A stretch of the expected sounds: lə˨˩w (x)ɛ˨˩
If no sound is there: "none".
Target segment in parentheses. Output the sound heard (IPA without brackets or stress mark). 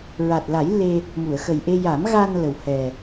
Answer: h